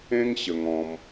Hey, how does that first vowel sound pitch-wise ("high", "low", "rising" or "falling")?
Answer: high